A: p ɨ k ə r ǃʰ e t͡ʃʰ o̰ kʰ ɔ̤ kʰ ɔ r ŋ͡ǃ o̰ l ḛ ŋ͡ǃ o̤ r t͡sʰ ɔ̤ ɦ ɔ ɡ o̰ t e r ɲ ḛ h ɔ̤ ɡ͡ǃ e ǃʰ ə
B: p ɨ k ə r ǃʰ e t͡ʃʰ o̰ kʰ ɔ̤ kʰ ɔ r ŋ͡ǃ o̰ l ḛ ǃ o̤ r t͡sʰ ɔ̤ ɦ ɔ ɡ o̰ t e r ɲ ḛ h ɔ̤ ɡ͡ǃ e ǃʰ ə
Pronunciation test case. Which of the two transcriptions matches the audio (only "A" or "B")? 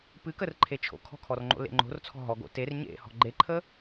A